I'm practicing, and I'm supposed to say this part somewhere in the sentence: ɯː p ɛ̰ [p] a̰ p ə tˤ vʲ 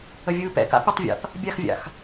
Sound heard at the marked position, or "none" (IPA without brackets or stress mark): k